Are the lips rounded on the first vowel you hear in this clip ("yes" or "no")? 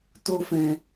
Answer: yes